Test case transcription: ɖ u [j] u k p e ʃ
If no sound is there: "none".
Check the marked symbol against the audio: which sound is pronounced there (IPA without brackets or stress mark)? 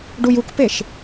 j